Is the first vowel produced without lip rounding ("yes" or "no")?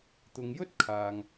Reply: no